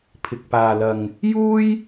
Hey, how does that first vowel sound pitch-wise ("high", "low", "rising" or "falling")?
low